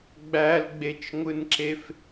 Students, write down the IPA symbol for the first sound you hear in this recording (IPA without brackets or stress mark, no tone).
ɡ͡b